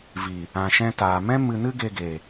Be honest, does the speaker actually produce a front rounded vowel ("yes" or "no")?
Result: no